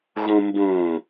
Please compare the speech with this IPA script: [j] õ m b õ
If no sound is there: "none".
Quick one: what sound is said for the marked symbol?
ɣ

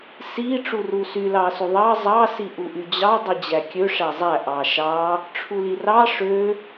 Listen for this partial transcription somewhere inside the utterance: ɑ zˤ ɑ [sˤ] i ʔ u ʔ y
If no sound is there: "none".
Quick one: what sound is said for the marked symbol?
s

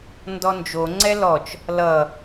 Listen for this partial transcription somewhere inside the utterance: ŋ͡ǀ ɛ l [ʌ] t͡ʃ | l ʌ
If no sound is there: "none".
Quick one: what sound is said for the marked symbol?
ɔ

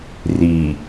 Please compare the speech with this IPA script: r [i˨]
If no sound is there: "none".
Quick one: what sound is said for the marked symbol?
i˨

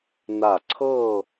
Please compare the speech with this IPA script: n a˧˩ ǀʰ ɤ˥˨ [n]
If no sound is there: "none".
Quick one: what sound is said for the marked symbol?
none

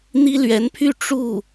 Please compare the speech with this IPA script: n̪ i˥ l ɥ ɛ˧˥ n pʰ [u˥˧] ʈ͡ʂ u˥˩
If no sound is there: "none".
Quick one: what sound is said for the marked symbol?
y˥˧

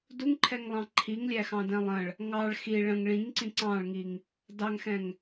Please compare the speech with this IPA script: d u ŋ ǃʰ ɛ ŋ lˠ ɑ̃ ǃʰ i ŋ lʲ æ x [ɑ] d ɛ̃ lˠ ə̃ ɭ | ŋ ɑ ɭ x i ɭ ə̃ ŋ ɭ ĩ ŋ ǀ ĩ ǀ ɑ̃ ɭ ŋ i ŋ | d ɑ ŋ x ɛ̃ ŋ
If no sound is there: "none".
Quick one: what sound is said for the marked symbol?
ɑ̃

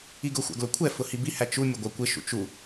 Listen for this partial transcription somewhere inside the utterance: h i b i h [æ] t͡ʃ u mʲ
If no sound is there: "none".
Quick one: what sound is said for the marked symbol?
æ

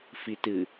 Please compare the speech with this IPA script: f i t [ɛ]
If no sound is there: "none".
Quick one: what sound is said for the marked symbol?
ɨ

